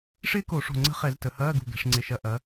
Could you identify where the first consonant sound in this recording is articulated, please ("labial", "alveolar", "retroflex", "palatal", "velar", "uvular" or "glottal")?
retroflex